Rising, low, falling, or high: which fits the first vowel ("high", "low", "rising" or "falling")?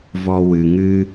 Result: low